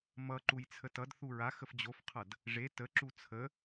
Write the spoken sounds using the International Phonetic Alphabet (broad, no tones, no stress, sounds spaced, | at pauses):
m ʌ ǃ u j t͡sʰ ə t ʌ d θ u ɹ a x ə f d͡ʑ o f qʰ ʌ d | ʐ e t ə ǁ u t͡sʰ ə